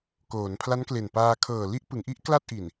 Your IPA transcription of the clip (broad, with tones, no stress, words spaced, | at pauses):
koː˩˦npʰla˦˥nkle˨˩n paː˧ kʰɤː˨˩ li˥˩ʔpɯ˩˦ŋʔi˥˩ʔ kla˥˩t̚ʔi˨˩n